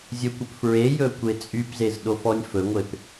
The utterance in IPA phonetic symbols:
zʲɵkʷɵp fɹe jɵkʷet͡sʼypzez ɗofɔnʲfɵŋʷep

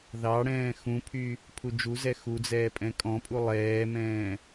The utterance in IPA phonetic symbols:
ðɑɽɛ̃ː xũpʰy | pʰud͡ʒuzɛ xud͡zɛː pʼɛ̃kʼɔ̃pʼu lˠɛːmɛ̃ː

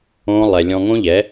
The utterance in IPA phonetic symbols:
õ˦lˠɛ˧ lʲɔ̃˧ŋõ˦ʎɛ˨˦

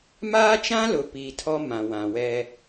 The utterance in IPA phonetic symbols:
maː˦t͡ʃã˦lʊ˨ piː˨ tʰɔ˦ mã˨wã˨ wɛ˦

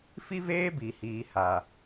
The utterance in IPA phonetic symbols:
fi˦veː˦ bi˨hiː˨ha˨

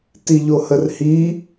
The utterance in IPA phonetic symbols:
tiʎohərhi

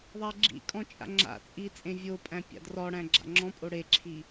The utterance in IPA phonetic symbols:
ðˤæɡ͡ǁḭkʼɔ̃ t͡ʃʼa̰ŋ͡ǁa̰t͡sʼi t͡sʼẽvʲopʼæ̃ pʲa̰drɔɽæ̃ ɡ͡ǁa̰ŋ͡ǁɔ̃pʼo ɽeǁʰi

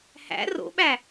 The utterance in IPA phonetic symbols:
hæ̰ ro̰ɓæ

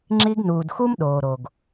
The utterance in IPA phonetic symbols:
ŋ͡ǁi˧ɡnuː˨dxu˦m ɗoː˨ɾo˨ɡ

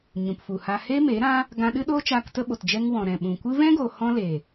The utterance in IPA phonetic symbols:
ɲũ˨pfu˨ha˧ heː˦meː˨˦ɾã˦ | ɡã˧ɗɨ˦ɗoː˦t͡ʃaː˧k tə˦ɓo˨td͡ʒɛ˦ŋwɔ̃˨ ɾɛ̃˨ ɓũ˨kʷɨ˦ vɛ̃˦ɡo˨ hɔ̃˧le˨

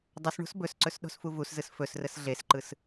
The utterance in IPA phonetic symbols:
dˤəs ɳo̤sbɵsǀɵs ɗo̤sfuvuszɯs fɵsrəs ɮesǃɯs

